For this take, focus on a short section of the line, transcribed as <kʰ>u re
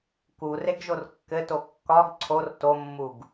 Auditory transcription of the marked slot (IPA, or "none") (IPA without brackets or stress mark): k